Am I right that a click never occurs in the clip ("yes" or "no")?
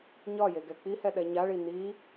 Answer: yes